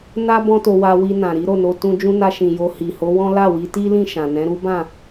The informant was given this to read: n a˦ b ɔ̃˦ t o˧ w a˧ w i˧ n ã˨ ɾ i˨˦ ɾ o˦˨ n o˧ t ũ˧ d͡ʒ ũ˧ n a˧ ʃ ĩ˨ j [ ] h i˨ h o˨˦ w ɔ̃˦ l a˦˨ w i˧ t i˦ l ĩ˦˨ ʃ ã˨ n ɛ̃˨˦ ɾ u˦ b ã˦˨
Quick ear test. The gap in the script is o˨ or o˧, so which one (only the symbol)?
o˧